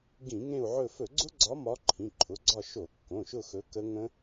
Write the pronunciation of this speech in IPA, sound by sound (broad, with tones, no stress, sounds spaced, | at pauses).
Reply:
ɡ ĩ˧˩˧ ŋ ẽ˦˨ u̯ ʕ ɵ˦˨ f ɵ˧˩˧ ɡ͡ǀ ʊ˦˥ ɡ͡ǀ ɒ˨˦ m ɒ˨˦ ǃʰ ĩ˩˧˩ ǃʰ ʊ˩˧˩ ɡ͡ǀ ɒ˦˨ ʃ o˧˩˧ kː õ˩˧˩ ʃ ʊ˦˨ x ɵ˨˦ k ə˦˥ ŋ ə̃˦˥